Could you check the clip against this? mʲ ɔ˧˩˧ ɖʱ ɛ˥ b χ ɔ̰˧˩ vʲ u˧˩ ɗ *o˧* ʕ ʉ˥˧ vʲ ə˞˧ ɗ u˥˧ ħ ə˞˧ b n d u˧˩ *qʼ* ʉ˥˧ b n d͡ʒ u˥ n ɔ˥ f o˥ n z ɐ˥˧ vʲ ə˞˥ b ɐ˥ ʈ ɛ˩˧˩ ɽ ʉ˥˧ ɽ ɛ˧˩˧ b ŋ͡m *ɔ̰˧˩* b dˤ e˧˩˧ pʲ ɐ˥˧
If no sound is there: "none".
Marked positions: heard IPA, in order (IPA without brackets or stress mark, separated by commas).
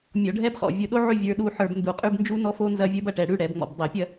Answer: o˥, qʼ, ɔ̰˧˩